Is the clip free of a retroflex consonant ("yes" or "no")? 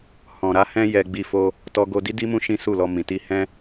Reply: yes